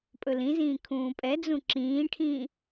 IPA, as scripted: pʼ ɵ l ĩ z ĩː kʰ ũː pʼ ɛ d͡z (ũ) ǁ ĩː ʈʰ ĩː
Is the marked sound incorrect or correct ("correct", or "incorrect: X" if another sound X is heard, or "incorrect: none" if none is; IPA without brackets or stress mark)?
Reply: correct